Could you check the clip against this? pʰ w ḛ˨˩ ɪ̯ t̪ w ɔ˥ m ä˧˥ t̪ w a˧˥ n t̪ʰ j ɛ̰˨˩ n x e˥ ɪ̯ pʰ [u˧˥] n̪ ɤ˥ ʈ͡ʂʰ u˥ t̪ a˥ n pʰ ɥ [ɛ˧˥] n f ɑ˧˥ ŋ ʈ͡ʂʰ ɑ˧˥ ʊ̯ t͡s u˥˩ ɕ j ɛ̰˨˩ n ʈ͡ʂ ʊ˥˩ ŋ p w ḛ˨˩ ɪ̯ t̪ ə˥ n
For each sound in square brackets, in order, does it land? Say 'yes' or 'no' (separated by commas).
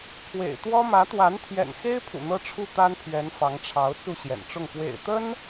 no, yes